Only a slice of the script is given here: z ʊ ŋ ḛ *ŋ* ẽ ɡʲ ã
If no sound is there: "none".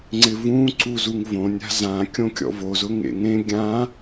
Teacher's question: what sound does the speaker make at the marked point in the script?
ŋ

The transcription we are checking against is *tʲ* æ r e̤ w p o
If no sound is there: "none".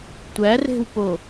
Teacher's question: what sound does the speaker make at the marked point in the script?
tʷ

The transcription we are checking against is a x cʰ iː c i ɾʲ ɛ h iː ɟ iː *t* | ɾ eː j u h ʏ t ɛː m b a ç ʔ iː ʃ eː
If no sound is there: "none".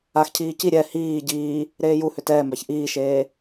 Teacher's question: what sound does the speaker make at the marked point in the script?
none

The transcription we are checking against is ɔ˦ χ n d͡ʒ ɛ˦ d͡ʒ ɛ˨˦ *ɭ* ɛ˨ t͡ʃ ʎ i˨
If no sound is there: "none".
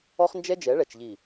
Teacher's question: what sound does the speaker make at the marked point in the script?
ɭ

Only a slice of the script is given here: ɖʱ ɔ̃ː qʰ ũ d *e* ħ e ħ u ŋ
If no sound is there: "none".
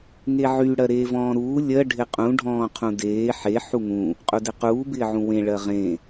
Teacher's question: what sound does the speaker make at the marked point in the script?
eː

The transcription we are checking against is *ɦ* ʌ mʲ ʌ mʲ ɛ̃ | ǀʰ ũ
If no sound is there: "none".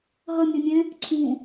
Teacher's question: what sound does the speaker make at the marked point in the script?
ɦ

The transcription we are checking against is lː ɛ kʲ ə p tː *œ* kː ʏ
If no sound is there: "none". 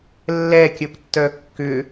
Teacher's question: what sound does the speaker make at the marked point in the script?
œ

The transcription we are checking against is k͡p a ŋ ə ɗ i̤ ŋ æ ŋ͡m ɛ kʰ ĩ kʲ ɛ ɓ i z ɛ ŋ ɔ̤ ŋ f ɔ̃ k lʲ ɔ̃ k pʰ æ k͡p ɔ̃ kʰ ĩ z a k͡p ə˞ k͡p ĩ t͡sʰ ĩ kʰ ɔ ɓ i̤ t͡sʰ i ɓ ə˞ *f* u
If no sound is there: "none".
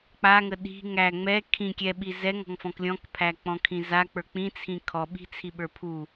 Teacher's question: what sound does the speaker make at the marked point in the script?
pʰ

